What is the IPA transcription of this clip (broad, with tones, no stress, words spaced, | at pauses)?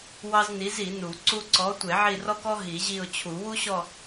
wɑ˥zni˨˥zi˨˩˦nu˨˩˦ ǀu˥ ǀɔ˨˥ tʷe˨˩˦ʕi˦˨rɔ˥kɔ˥ ɦi˨˩˦ʑi˦˨ʊ̯t͡ɕʰu˨˩˦ wu˥ɕɔ˦˨